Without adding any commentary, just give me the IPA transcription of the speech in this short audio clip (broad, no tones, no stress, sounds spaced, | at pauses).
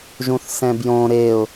ʒ ũ θ s ɛ̃ b j õ ɾ e ʊ̯